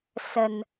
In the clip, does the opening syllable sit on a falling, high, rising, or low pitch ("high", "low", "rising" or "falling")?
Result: low